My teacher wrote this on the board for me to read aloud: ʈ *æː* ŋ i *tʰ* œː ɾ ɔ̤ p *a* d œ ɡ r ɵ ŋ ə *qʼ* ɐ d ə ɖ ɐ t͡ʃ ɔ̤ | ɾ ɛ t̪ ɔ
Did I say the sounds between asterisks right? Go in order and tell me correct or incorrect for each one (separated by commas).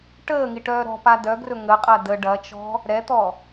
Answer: incorrect, incorrect, correct, correct